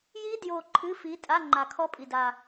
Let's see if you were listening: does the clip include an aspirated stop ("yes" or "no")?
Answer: yes